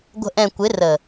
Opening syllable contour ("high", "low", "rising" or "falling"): low